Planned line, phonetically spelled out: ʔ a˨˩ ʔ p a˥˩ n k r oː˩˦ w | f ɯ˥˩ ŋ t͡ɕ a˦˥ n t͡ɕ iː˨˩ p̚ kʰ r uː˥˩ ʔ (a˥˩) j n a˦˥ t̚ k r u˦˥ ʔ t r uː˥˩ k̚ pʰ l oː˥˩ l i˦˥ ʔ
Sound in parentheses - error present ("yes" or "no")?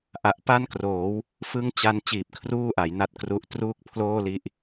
yes